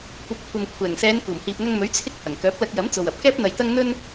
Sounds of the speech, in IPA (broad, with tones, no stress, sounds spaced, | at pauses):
kʷ ɐ˨ p̚ kʷʰ ɐ˨ m kʷʰ ɛː˨˩ ŋ s ɛː˨˧ n k uː˨˩ m h iː˨ p̚ ŋ ɐ˧ ŋ m ɵ˨˥ ɥ t͡sʰ ɪ˧ k̚ h ɐ˨˩ ŋ k œː˨˥ p̚ l ɐ˧ k̚ j ɐ˨˥ m t͡s o˨ w ɐ˨ p̚ k ɛː˥ p̚ n̪ ɐ˧ j t̪ ɐ˥ ŋ n̪ ɵ˥ n